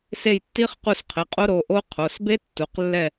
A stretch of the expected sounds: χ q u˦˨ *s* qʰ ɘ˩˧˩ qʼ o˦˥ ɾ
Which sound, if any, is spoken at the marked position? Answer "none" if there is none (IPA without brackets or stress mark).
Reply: s